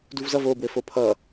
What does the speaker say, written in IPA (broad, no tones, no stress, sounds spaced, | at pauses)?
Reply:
d u v z ʌ v o b w ɘ f o pʰ ʌ